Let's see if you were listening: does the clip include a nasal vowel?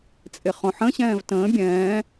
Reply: yes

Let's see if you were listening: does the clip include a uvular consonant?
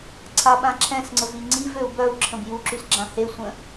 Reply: no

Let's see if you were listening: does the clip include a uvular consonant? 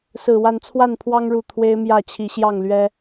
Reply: no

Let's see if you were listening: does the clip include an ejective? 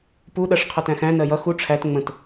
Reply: no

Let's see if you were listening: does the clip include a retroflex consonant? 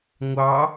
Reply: no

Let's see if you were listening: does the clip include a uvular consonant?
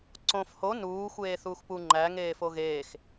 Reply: no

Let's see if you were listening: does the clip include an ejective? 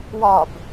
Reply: no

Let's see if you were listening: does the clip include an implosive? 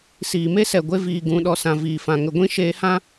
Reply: yes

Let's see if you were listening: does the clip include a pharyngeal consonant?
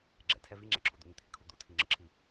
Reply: no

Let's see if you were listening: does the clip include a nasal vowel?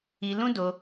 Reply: yes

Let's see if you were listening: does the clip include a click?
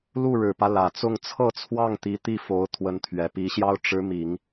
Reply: no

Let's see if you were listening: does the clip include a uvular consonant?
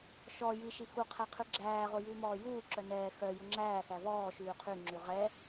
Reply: yes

